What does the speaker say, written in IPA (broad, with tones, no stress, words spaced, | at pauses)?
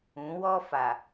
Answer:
ũ˨˦wɔ˦fa˨